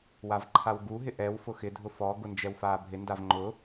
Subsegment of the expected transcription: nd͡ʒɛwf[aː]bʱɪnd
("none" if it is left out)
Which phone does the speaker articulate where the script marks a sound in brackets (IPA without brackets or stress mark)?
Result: aː